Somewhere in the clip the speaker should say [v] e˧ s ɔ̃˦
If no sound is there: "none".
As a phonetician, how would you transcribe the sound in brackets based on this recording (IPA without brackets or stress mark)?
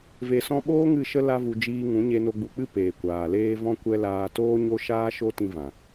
v